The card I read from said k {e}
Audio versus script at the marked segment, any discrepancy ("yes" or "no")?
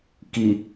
yes